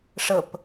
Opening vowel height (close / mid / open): mid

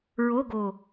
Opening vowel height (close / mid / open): mid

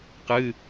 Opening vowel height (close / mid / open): close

